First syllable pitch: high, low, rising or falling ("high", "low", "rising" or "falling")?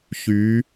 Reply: rising